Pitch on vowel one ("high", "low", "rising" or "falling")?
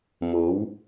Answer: rising